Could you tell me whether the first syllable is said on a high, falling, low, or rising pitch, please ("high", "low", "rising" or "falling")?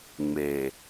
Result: low